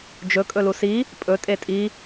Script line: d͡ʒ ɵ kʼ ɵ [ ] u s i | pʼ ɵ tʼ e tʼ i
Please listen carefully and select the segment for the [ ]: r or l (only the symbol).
l